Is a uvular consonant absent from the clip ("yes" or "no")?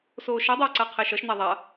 no